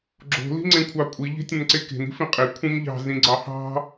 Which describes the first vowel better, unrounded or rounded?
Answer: rounded